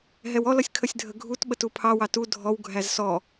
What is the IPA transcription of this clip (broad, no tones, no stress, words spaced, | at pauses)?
ɦɛwɔlʌsʲ kʰəsʲdʱəɡʱut ɓətupʰɑwɑ tu dʱɔw ɡʱæzsɔ